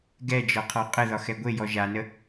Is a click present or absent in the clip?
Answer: absent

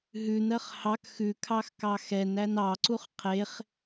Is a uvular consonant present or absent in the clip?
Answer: present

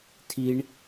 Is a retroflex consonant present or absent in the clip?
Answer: present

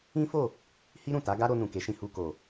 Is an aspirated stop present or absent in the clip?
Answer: absent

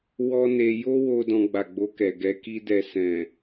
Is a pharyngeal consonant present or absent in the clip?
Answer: absent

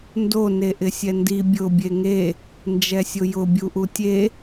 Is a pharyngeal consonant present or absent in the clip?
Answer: absent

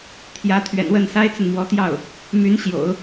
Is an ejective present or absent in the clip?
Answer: absent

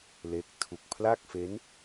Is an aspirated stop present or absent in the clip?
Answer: present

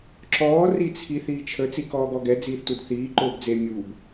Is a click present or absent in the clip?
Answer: present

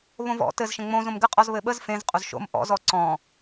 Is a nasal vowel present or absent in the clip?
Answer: present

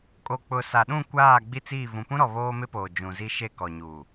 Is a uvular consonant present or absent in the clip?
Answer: absent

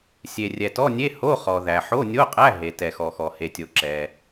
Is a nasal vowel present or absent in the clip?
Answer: absent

